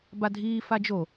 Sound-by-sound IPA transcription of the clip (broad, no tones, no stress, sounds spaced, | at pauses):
b a dʱ iː f a d͡ʒ o